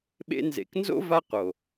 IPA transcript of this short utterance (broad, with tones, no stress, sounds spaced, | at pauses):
ɓ ḛ˧ n z ḛ˨ k n z o̰˦ v a˦ q o˨